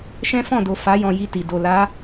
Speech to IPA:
ʃ ɛ̃˦ f ɔ̃˦˨ d o˨ f a˨˦ j ɔ̃˧ j i˧ t i˨ d o˨ l a˨˦

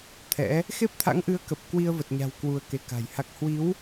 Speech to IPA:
t̪ʰ ɛ̰˧˥ | x e˦˥ p̚ t̪ʰ a̰˧˥ ŋ ʔ ɨ˨˦ ə̯ k ə˨˩ p̚ k w i˧ ə̯ v ə˨˩ t̚ ɲ a̤˨˩ w k w u˧ ə̯ k e˧ k a̤˨˩ j h a˦˥ k̚ h w i˨˦ w

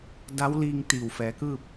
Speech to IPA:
d a˧˥ w l iː˧ ŋ t̪ iː˧˩ w f ɛː˩˧ k ɯː˥˨ p̚

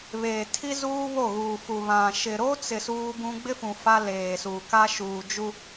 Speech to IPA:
β eː˨ tʰ i˦ z uː˦ β o˦˨ ɣ uː˨ f u˨ β ã˨ ʃ ɪ˨ ɾ o˦ t͡s ɪ˨ s uː˦ b ũ˦ ɡ͡b ɪ˦ f ũ˨ f a˦ l eː˨ s u˨ k a˦ ʃ uː˨ d͡ʒ u˦

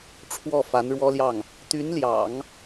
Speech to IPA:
ʈ͡ʂʰ w ɔ˥˩ f a˧˥ n ɻ w ɔ˥ l j ɑ˥˩ ŋ | t̪ y˧˥ n l j ɑ̰˨˩˦ ŋ

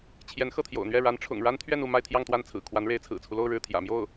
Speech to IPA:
t͡ɕʰ j ɛ˧˥ n x ɤ˥˩ t̪ʰ j o̰˨˩ ʊ̯ n̪ ɥ ɛ˥˩ ɻ a˧˥ n ʈ͡ʂʰ ʊ̰˨˩ ŋ ɻ a˥ n t̪ʰ ɥ ɛ˥˧ n u˥˧ m a˥˧ ɪ̯ t̪ʰ j ɑ˥˧ ŋ t̪ w a˥˩ n t͡sʰ ɹ̩˨˩ kʰ w a˧˥ n ɻ e˧˥ ɪ̯ t͡sʰ ɹ̩˨˩ t͡sʰ u˦ l o˥˧ ʊ̯ ɻ ɻ̩˥˩ t̪ʰ j ä̰˨˩ m j o˥˩ ʊ̯

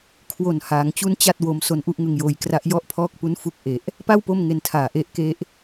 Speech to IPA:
kʰ w o˨˩ n h aː˩˦ ŋ t͡ɕ u˦˥ n t͡ɕ a˥˩ t̚ w o˦˥ m s o˦˥ n ʔ u˦˥ ʔ ŋ ɯ˧ ŋ j oː˧ j k r a˦˥ ʔ j ɔ˥˩ ʔ pʰ ɔː˥˩ k̚ p u˦˥ n f u˦˥ k̚ ʔ e˨˩ ʔ | p a˥˩ w p o˥˩ m ŋ e˧ n tʰ aː˨˩ ʔ e˦˥ ʔ k e˦˥ ʔ

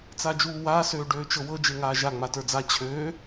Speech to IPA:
t͡s a d͡ʒ uː w aː s øː ɖ øː t͡ʃ ɤ w ɤ d͡ʒ e ŋ aː ʒ a ŋ͡m a t ə˞ d͡z a t͡ɕʰ øː

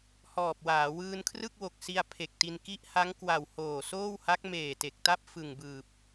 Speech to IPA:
h ɔː˨˩ p̚ w aː˩˦ w ɯː˧ n kʰ r ɯ˥˩ k̚ w o˨˩ k̚ s i˧ a̯ pʰ e˨˩ k̚ t i˧ n k i˦˥ ʔ h a˦˥ ŋ k w a˨˩ w h oː˨˩ s oː˥˩ w h a˦˥ k̚ m eː˨˩ t e˨˩ k̚ t a˥˩ p̚ f ɯ˨˩ ŋ b ɯː˨˩ p̚

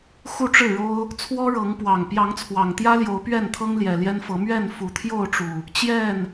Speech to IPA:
x u˥˨ ʈ͡ʂ ɻ̩˥˨ ɻ o˦ ʊ̯ | t͡sʰ w ɔ˦ ɻ ɤ˨˦ ŋ p w ɑ˨˩ ŋ p j ɑ˨˦ ŋ t͡sʰ w ɑ˨˩ ŋ t̪ j ä˦ l j o˨˦ ʊ̯ p ɥ ɛ˥˨ n t̪ʰ ɤ˦ ŋ l j ɛ˨˩ l j ɛ˦ n f ɤ˨˦ m ɥ ɛ˥˨ n f u˨˩ t̪ʰ j o˥˨ ʊ̯ ʈ͡ʂ u˨˩ | t͡ɕ j ɛ˥˨ n

